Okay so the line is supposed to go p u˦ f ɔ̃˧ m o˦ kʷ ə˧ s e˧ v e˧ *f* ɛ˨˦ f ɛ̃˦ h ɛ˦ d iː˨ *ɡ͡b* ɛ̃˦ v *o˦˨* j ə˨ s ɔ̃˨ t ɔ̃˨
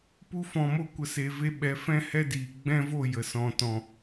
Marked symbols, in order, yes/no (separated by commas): no, yes, yes